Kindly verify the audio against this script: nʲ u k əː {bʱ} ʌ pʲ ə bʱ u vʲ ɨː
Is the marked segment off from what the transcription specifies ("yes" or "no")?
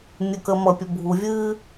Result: yes